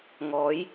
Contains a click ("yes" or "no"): no